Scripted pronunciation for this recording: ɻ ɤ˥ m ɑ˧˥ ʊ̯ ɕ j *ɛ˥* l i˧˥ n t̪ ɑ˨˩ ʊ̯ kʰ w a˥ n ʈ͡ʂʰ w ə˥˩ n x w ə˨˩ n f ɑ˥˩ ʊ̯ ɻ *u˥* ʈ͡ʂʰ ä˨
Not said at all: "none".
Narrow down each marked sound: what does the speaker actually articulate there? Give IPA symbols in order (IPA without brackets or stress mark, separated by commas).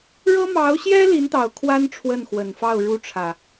ɛ˥, u˥